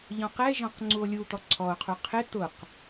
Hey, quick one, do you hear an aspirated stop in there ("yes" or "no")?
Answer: yes